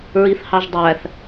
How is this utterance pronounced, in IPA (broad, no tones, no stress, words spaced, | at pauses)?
ɹiθhɑʒdˤæθ